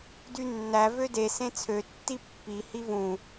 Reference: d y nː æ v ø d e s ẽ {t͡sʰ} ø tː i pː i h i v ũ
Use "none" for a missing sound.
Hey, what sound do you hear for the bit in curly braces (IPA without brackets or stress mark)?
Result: t͡sʰ